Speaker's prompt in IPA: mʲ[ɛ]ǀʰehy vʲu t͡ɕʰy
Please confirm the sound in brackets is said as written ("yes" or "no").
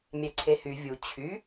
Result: yes